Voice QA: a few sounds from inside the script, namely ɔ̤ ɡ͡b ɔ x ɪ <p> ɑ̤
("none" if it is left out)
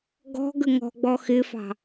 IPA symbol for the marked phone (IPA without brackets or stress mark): f